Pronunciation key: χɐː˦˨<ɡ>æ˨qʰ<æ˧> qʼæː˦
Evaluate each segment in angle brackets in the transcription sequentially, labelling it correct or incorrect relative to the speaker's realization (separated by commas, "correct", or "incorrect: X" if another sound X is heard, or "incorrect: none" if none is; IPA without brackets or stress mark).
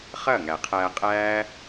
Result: incorrect: ŋ, incorrect: æː˧